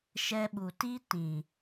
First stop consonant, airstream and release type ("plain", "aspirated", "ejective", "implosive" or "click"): implosive